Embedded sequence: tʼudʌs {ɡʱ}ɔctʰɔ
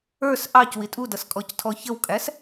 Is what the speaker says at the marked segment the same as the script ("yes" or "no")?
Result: no